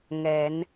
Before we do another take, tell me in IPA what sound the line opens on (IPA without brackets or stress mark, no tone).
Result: ŋ